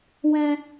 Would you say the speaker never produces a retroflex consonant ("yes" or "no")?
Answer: yes